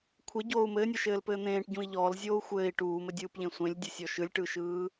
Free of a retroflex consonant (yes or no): no